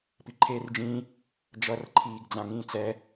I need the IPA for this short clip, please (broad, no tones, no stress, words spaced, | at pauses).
piǃʰeːrd͡ʒĩ | d͡ʒʌrǃʰiːɡd͡zã ŋĩːt͡sɛ